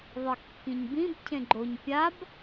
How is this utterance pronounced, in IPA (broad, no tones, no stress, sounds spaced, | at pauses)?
ðˤ ɨ kː ĩ ɲ b ĩ b cʰ ẽ ɡ͡ǃ o ɲ pʲ a b